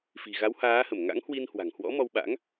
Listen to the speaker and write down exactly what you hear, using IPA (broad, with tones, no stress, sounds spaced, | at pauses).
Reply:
f i̤˨˩ ɣ a˨˦ w h aː˨˦ h ə˧˩ m ŋ a̰˧˥ ŋ h w i˧ n h w a̤˨˩ ŋ h w ɔ̰˧˥ m ɔ˧ w ɓ a̰˧˥ ŋ